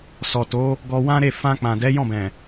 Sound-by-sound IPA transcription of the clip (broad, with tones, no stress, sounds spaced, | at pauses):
s ɔ˨ t o˨˦ | ɡ ɔ˧ w ã˦ ɾ e˦˨ f ã˧ k͡p ã˨ d ɛ˨˦ j ɔ̃˦˨ b ɛ̃˨